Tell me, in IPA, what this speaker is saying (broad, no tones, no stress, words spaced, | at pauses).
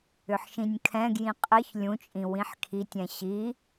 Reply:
ʏħʃĩnʲkʰɛ̃ɡjĩ qʼɘç lʲũt͡ʃʼĩ wĩħkʰitʲɛ̃ ɕi